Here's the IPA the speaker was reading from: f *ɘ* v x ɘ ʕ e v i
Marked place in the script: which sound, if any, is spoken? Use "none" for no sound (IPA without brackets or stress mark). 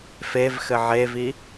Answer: e